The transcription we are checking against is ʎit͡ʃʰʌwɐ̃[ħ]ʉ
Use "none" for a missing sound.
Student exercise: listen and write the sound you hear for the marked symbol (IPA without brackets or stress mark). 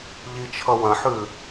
ħ